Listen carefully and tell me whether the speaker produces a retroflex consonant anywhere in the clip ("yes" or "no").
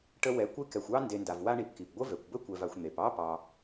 yes